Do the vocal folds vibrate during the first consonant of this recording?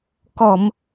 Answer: no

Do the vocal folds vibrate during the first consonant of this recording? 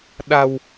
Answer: yes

